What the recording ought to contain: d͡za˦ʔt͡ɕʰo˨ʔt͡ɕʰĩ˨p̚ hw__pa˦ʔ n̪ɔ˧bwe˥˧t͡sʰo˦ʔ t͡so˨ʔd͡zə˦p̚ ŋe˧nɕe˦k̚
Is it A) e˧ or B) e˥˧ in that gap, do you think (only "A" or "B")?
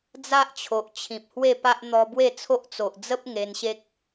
B